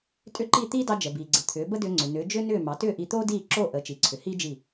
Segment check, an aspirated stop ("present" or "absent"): present